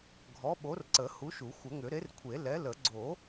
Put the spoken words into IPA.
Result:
ɡʱ ɔ˨˥ ɓ o˨˥ r ǀ ə˨˩˦ h u˨˥ ʃ u˨˩˦ xʷ ə˨˩˦ ŋ ʏ˨˩˦ ɾ e˨˥ r kʷʰ e˨˩˦ l ɛ˨˥ l ə˨˩˦ ɡ͡ǀ o˨˩˦

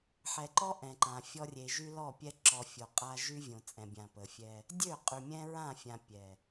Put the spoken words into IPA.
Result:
ħ ɛ˨ ǃ ɔ˦ ʔ ɛ̃˨ ǃ ã˨ fʲ ɔ˦ rʲ e˨ ʒ y˦ l ɔ˦˨ pʲ ɛ˦ ǁ ɔ˨ fʲ o˨ qʼ a˦ ʒ y˦ vʲ õ˨ t͡sʼ ɛ̃˨ bʲ ã˨ p ə˨ fʲ ɛ˦ | dʲ ø˦˨ qʼ y˨ mʲ ɛ̃˦ ɹ ã˦˨ fʲ ã˨ pʲ ɛ˨

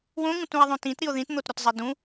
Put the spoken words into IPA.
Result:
w õ ŋ ũ t ũ e̯ ðˤ õ t ĩ t ɾ i o̯ ð ĩ t n̪ o t ɾ o t zˤ i d ũ

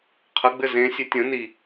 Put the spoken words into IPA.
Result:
qʰ ə ɡ͡b ɘ z ẽ sʲ e tʲ ə̃ n i

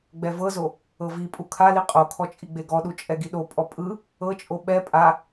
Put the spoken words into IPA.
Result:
ɡ͡b ɛ v ɤ z o | ɤ v i pʼ u kʰ a l i qʼ o kʰ ɔ t͡ʃʼ i ɡ͡b e ɡ ɔ ɗ u t͡ʃʼ ɛ ɡ i ɗ o pʼ ɔ pʼ ɯ | ɤ t͡ʃʼ o ɓ ɛ pʼ a

